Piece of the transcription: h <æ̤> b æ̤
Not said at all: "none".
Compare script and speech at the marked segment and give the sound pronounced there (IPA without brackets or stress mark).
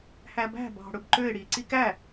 æ